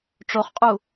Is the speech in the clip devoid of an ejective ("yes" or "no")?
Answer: no